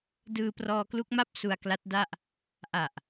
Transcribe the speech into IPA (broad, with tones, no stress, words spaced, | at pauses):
dɯː˧prɔː˧klu˦˥k̚ma˥˩p̚ su˧a̯kla˦˥t̚da˥˩ʔ | ʔa˨˩ʔ